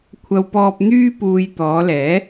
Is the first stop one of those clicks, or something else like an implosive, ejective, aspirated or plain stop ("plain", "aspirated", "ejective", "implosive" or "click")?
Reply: aspirated